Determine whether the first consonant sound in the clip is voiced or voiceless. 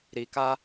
voiced